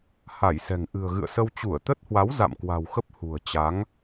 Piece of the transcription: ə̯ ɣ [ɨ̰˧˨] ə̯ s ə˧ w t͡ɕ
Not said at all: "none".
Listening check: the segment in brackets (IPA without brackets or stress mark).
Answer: ɨ̰˧˨